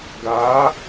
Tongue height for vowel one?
low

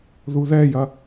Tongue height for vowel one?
high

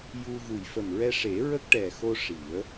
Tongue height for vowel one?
high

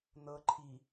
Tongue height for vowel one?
mid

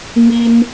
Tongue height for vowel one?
high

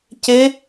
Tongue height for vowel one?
mid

